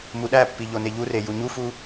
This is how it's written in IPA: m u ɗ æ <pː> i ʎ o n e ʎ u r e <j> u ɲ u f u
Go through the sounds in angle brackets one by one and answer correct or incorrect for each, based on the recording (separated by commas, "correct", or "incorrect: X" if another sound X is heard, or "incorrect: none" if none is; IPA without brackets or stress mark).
correct, correct